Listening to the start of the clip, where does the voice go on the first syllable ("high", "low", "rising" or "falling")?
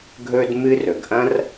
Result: high